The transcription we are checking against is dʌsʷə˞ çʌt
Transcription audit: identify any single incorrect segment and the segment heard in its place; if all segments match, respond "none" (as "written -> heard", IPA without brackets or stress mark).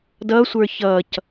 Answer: t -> c